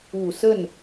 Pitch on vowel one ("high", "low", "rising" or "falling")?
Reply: low